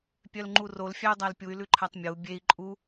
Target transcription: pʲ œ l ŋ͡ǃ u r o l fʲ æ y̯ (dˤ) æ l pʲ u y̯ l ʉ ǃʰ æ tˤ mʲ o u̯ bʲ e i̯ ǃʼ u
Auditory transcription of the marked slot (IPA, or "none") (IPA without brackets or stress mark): dˤ